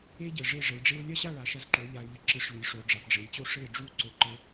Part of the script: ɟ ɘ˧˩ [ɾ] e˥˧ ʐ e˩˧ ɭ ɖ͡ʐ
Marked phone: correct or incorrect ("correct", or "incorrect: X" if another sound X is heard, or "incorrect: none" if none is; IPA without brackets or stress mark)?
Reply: incorrect: ʐ